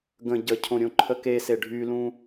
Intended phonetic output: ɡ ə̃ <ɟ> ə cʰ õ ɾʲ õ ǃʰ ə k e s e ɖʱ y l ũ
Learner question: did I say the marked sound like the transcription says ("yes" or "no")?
yes